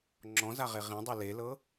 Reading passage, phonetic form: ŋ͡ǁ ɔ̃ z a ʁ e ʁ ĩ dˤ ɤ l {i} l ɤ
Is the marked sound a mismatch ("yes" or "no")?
yes